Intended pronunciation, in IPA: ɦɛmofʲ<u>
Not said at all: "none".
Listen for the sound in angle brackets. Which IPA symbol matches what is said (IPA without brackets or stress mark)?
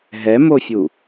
u